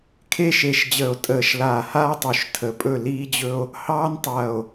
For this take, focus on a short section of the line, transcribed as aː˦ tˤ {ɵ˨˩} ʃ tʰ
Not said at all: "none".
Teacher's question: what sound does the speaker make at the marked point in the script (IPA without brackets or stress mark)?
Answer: o˨˩